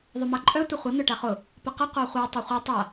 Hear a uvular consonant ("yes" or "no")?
yes